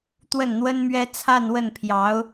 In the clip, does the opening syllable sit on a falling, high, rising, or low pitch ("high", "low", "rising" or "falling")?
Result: falling